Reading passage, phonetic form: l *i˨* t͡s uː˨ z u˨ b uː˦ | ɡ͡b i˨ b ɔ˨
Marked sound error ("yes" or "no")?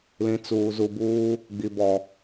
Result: yes